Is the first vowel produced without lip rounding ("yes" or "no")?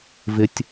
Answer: yes